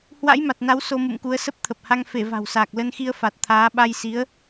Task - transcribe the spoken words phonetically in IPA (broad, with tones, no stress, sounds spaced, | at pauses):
h w a̰˧˥ j m a˨˩ t̚ n a˨˦ w s o˧ m ṵ˧˨ m k u˨˦ ə̯ s ə˦˥ p̚ t̪ʰ ə˨˩ p̚ h a˧ ŋ f e˧˩ v a̤˨˩ w s aː˨˩ k̚ l ə˧ n x i˧ ə̯ f a˨˩ t̚ t̪ʰ aː˨˦ ɓ a˧ j s i˨˦ ə̯